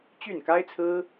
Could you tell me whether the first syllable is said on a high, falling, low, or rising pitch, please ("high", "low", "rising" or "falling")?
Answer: falling